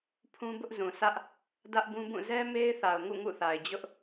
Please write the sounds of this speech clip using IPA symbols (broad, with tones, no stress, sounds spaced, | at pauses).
pʰ ũ˦ b ʊ˦ ʔ z ũ˨ s ä˦ ʔ | d ä˦ ʔ b ũ˦ b ũ˦˨ z ɛ˦ m e˦ ɪ̯ θ a˨ ʊ̯ ŋ ṵ˦˨ ŋ ṵ˦˨ θ a˨ ɪ̯ d͡ʑ ʊ˦ ʔ